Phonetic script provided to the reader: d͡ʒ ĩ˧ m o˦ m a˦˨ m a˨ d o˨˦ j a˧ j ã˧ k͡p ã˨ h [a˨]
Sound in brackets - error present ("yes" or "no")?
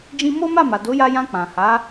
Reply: yes